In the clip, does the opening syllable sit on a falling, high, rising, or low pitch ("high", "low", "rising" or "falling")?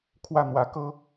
falling